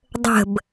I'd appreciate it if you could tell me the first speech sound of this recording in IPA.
dˤ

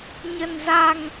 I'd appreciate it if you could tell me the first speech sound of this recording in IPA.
ɲ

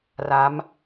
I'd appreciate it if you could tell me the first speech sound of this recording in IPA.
r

